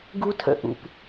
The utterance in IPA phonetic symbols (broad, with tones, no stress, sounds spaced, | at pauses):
ɡ u˦ tʰ ə̰˧ ʔ ṵ˨ p